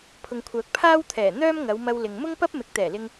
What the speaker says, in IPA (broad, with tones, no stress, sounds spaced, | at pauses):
pʰ ʊ˨ ŋ kʷʰ œː˨ k̚ pʰ aː˥ w t̪ʰ ɛː˨˩ n̪ œː˥ m ŋ ɐ˨˧ w m ɐ˧ w l ɪ˨ ŋ m ʊ˥ ŋ p ɐ˥ p̚ m ɪ˨˥ k̚ t̪ ɛː˨˩ l ɪ˧ ŋ